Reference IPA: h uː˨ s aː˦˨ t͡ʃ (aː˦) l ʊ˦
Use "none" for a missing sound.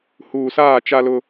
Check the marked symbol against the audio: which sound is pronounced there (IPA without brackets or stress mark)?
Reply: a˦